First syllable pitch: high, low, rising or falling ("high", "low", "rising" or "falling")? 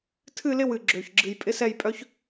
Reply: falling